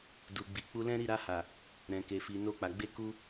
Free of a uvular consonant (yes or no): yes